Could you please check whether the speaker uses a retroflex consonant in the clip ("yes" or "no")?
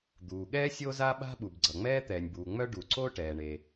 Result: yes